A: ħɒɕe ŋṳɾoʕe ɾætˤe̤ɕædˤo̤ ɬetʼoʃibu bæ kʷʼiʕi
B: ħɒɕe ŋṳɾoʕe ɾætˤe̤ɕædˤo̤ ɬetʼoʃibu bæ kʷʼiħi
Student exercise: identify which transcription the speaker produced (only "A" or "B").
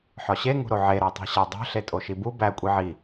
A